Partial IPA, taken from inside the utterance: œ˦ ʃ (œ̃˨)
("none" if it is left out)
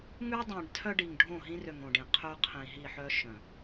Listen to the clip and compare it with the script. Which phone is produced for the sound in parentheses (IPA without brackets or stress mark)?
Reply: œ̃˨